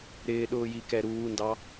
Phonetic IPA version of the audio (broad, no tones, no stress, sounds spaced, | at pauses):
ɾ ɪː ɗ ʊː j i k ɛ ɾ uː n d ɑ